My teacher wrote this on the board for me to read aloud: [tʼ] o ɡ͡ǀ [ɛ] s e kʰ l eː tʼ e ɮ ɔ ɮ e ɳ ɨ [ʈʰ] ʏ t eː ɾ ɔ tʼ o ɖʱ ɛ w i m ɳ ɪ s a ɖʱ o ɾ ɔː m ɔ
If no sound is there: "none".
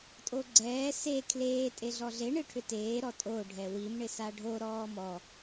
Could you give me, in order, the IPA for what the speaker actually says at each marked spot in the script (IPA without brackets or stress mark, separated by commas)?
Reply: tʼ, ɛː, ʈʰ